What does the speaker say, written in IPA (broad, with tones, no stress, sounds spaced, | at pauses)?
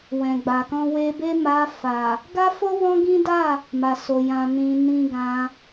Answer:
w ɛ̃˨ ɡ͡b a˨ k ɔ̃˧ w e˧ b e˦ m a˧ f a˨ | ɡ a˦ f o˦ w ɔ̃˦ ɡ ĩ˦ d a˦˨ | m a˨ s o˨ j ã˨ n ĩ˨ n ĩ˧ ɡ ã˧